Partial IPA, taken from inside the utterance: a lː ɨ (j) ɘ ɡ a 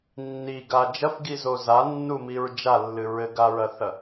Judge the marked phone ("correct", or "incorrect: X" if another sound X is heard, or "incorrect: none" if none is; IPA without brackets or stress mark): incorrect: ɹ